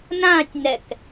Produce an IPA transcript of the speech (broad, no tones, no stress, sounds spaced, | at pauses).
n ã tʲ n ɛ k